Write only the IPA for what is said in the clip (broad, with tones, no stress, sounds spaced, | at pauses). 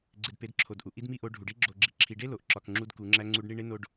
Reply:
ɡ͡ǀ e˨ d p e˨˦ d ǁʰ o˨ d ʔ u˨ ʔ i˦ d m i˦ ʔ o˨˦ ɖʱ u˨ ɖ i˦ ɡ͡ǁ o˨ ɡ͡ǁ i˨ ǁʰ i˨ ɖ e˦ l o˨ ʔ ǁ ɒ˨ k ŋ͡ǁ u˦ d k u˨˦ ŋ͡ǁ æ˦ ŋ͡ǀ u˦ ɖ ɳ i˦ ɳ e˦ n o˨ ɖ